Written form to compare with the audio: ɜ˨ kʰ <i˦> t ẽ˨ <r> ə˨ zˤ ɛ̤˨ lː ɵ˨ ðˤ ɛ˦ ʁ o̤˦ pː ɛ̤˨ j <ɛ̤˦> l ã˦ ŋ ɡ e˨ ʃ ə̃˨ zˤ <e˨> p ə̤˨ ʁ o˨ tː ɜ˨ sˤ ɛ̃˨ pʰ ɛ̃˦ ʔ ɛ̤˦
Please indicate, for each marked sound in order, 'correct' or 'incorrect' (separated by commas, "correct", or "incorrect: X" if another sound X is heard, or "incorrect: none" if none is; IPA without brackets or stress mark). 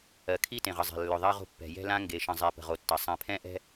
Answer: correct, incorrect: ʁ, correct, correct